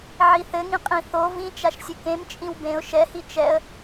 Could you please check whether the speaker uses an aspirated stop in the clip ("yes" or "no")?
no